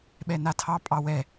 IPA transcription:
ɓ ɛ n a tʰ ɑ pʼ ɑ w ɛ

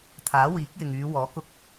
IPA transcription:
t̪ʰ aː˨˥ w iː˨˥ k̚ j ɪ˨ ŋ yː˨˧ w ɔː˨˥ k ʊ˧ k̚

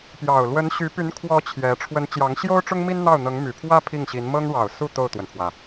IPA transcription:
p j ɑ˨˩ ʊ̯ l w ə˧˥ n ɕ y˧˥ p y˧˥ n kʰ w ɔ˧˥ t͡ɕʰ j ɛ˧˥ ʈ͡ʂʰ w ə˧˥ n t͡ɕ j ɑ˧˥ ŋ ɕ j o˥ ʊ̯ ʈ͡ʂ ʊ˥ ŋ m i˥ n n̪ ɑ˥˩ ʊ̯ n̪ ɤ˧˥ ŋ m y˨˩ pʰ w ä˥ pʰ i˥˩ ŋ ɕ i˧˥ n m ɤ˥ ŋ ɻ ɑ˨˩ ʊ̯ s u˥˧ t̪ o˥˩ ʊ̯ t̪ w ə˩ n pʰ w ä˩

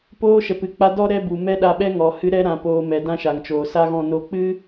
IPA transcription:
p oː˧ ʃ ɛ˨ p ɨ˨ k͡p a˧ d ɔ˦ ɾ ɛ˦ b u˨ m ɛ˦ ɗ a˧ ɓ ɛ˦ ŋ ɔ˨ h ɨ˨˦ ɾ ɛ˧ ɾ ã˨ p oː˨ m ɛ˨ d ã˦ ʃ a˨ ŋ t͡ʃ oː˨ s a˦ ɣ ɔ̃˦˨ n o˦ k͡p ɨ˦

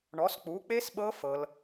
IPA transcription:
ɳ ɔ˨˥ s k͡p u˨˥ k͡p e˦˥ s ɓ ɤ˦˥ f ɤ˦˥ l

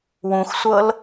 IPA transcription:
w ũ x sʷ ɤ l

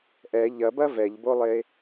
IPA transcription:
ʔ ɛ ʎ ɐ b ɐ v ɛ ʎ b o lˠ e

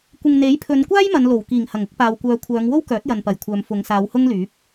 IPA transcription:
kʷ ɪ˨ ŋ n̪ e˨˥ j pʰ ɵ˨˧ n kʷ aː˥ j m ɐ˨˧ n l o˨˩ w k iː˨˩ ŋ h ɐ˨˩ ŋ ʊ˧ k̚ p aː˨ w kʷ œː˨˧ kʷʰ œː˨˧ ŋ w o˥ w k œː˨˥ t̚ j ɐ˨ n p ɐ˨˩ j kʷʰ œː˨ m f ʊ˨˧ ŋ s aː˨˧ w h ʊ˥ ŋ l yː˨˥ p̚

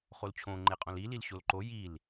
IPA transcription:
χ o l t͡ɕʰ õ ŋ͡ǃ e qʼ õ l i l i l ɕ o l ǃ o j i l

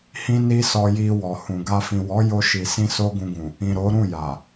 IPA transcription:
h ĩ˦ n i˦ s ɔ˧ j i˧ w ɔ˨ h ũ˨ ɡ a˧ f ĩ˨ w ɔ˨˦ j o˧ ʃ i˨ s ĩ˧ s o˦ ɡ ũ˧ ɡ ũ˨ | ĩ˨ ɾ o˨˦ ɾ ũ˦˨ j a˨

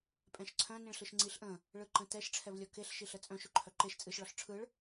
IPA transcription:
pʼ ɛ̃ ʃ ǀʰ œ̃ n ĩ ɭ ɬ ɯ ʃ ŋ͡ǀ i ɬ ʔ ə̃ | ɭ ɯ ǃ ə̃ t ɛ ʃ ʈ͡ʂʰ ɛ v lʲ ɔ k e ɬ ʃ i ɬ ə t͡sʼ œ̃ ʃ ɵ ǃʰ œ ǃ e ʃ t͡sʼ ɨ ʃ ɭ ɔ ɬ ʈ͡ʂʰ ɯ ɭ

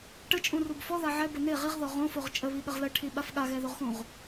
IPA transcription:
ʈ ə t͡ʃʼ ũ r u b f ɔ ð a ʕ ɛ b ə n e ʁ i ʁ ð ɔ ʁ õ f o ʁ t͡ʃʼ ə β i ɠ ə ʁ l ə ʈʰ i ɓ a f ɠ a ɣ ɛ ð o ʁ x ũ ʁ

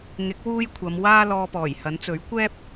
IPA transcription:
ŋ ɪ˨˥ k̚ w uː˥ j kʷʰ ɐ˨˧ m w aː˥ l ɔː˧ p ɔː˨˩ j h ɐ˨˥ n t͡s ɵ˨˥ ɥ kʷ ɛː˥ p̚

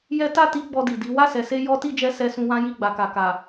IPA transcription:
j ɛ˦ t a˦˨ t i˧ ɡ͡b ɔ˧ d i˨ d i˨˦ w a˦˨ s ɛ˨ s e˧ j ɔ˦ t i˦˨ d͡ʒ ɛ˧ s ɛ˧ s ũ˧ w ã˦ j i˦˨ ɡ͡b a˨ k a˨ k a˨

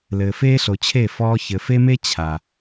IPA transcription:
l ɘː˨ f eː˦ ɬ o˨ t͡ɕʰ e˦˨ f ɔː˦ ç ɘ˨ f e˦ m e˦ t͡ɕʰ a˨

